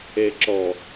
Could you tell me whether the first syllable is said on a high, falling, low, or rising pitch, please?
low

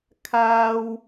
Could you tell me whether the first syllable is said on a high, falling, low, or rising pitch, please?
low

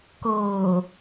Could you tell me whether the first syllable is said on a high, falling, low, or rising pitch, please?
low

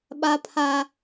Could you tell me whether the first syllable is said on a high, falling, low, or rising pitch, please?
high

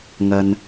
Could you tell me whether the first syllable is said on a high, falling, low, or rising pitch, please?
low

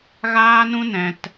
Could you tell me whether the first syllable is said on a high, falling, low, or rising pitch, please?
high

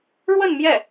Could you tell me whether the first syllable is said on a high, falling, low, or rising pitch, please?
falling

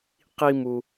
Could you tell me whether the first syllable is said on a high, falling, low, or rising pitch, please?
high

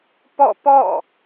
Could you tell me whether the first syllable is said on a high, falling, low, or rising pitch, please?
falling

